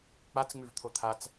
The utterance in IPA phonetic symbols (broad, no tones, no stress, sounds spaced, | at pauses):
k͡p a t͡s ŋ͡m ʉ v t̪ʰ o t̪ʰ a t͡s